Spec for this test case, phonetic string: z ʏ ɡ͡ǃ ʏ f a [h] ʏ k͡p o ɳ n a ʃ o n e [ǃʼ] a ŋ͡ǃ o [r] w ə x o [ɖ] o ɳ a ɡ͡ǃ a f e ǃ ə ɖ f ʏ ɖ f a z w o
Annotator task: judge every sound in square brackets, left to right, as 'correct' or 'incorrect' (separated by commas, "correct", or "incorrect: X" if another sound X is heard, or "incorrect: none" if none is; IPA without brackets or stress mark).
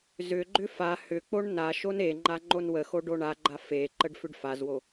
correct, incorrect: ŋ͡ǃ, incorrect: n, correct